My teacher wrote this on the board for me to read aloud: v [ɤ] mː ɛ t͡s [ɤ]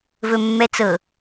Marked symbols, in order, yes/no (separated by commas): no, yes